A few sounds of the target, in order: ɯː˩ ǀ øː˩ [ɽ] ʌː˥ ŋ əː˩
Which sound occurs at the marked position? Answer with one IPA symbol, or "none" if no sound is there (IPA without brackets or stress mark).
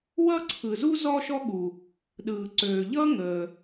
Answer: ʎ